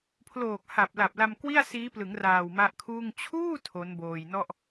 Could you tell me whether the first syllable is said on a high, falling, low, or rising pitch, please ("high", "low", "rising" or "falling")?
low